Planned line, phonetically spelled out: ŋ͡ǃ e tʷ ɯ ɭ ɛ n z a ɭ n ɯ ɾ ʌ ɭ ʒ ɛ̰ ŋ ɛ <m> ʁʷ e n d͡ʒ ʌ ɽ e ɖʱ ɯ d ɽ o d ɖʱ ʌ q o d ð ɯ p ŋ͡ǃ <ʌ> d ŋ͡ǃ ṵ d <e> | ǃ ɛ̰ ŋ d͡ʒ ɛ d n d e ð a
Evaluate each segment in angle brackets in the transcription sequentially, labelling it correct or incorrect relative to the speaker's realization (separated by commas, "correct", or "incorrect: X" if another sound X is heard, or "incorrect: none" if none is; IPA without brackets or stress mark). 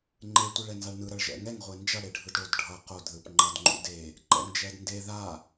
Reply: incorrect: ŋ, correct, correct